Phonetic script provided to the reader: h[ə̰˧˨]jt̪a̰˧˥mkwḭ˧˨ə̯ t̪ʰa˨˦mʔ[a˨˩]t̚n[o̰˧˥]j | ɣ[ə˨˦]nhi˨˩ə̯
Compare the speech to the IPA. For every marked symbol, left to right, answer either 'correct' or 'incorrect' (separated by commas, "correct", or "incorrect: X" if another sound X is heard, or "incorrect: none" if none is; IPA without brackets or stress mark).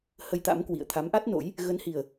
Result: incorrect: ə˧, incorrect: a˦˥, correct, correct